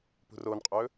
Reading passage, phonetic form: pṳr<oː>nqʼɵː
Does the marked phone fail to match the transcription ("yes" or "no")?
no